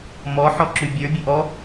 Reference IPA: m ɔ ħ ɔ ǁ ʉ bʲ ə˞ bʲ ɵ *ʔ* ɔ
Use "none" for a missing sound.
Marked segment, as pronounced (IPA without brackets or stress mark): ʔ